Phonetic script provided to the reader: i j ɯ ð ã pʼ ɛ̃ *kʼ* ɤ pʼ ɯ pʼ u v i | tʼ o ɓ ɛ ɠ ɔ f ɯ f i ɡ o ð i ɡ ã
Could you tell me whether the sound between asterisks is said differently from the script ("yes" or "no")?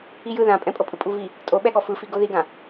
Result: yes